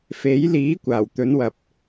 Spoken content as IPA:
f e˨˥ j l iː˨˥ kʷ aː˨˩ w t̪ ɵ˨˥ n w ɐ˨ p̚

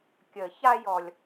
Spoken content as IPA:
kʲ ə˨˩˦ ç a˦ j ɔ˨ lʲ

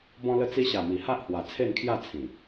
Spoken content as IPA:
b ɔ̃˧ l ə˧ t͡s i˧ ɕ a˨˩ m i˨˩ h a˦ ʔ h w a˨˩ t͡sʰ e˥˧ n kʰ j a˥˧ t͡sʰ ĩ˨˩

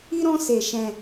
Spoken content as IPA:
i˦ ɾ ɔ̃˦ s e˧ ʃ ɛ̃˧

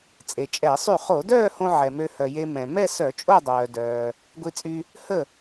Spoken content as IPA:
t͡sʼ e˩ t͡ʃʼ ɛ˧˩˧ sˤ y˥˩ χ o˧˩˧ d œː˥˧ h õ˧ ʕ ɛ˩ m ø˧ h œ˩ j e˧ m ɛ̃˩ m ɛ˥˧ s œ˧˩˧ t͡ʃʼ o˥˧ dˤ œː˩ d œː˩ | ɡʷ i˧ t͡sʼ y˧ | h ə˥˩

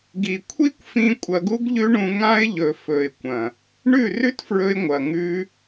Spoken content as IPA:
ɡ i˨ kʷʰ i˦ kʷ f ĩ˧ kʷʼ ɐ˧ ɡ u˦ ɡ ʎ ʉ˦ ɳ ũ˧ ŋ ã˧ ɪ̯ ʎ ɵ˨ f ɵ˨ ɪ̯ kʷ ɐ̃˨ | ɳ ʉ˦˨ r ʉ˦ t f ɹ ɵ˧ ɪ̯ ŋʷ ɐ˨ ŋ ʉ˧

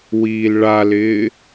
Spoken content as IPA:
w iː l ɭ a l ɪː

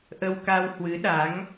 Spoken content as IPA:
ʔ ə˧ w k a˧ w h w ɨ˨˦ ɗ a˨˦ ŋ

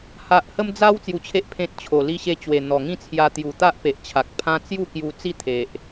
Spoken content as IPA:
h a˨ ʔ h ə˧ m d͡z a˧ w t͡s j u˧ t͡ɕʰ e˦ ʔ pʰ ẽ˦ t̚ t͡ɕʰ o˨˩ l i˦ ɕ e˦ t͡ɕ w e˨˩ n̪ ɔ˨˩ ŋ ĩ˥˧ t͡sʰ j a˧ t̪ j u˨˩ t̪ a˦ ʔ p e˨ ʔ t͡ɕʰ a˨ k̚ pʰ ã˦ t͡s j u˥˧ k j u˧ t͡s i˥˧ t̪ʰ e˨ ʔ

